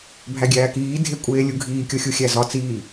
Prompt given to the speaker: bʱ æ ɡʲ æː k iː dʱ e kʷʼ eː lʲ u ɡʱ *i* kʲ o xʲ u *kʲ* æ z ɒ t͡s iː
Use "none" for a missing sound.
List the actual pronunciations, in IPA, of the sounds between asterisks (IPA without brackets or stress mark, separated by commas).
iː, xʲ